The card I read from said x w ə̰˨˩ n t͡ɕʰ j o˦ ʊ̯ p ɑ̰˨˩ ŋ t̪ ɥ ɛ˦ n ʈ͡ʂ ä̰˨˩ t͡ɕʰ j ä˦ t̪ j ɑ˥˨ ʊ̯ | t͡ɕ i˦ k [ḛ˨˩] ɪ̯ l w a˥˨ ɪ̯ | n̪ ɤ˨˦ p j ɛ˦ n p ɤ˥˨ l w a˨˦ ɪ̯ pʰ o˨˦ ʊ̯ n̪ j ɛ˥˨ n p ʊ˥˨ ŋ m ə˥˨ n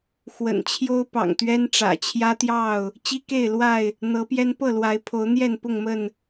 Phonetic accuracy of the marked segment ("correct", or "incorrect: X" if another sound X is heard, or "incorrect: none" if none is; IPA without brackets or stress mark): incorrect: e˥˨